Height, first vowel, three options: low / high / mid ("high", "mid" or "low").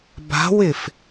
low